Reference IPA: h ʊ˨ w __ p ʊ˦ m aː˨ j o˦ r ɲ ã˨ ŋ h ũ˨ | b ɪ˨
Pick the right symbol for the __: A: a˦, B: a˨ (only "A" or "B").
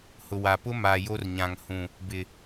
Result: B